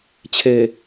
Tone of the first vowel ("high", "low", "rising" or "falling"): low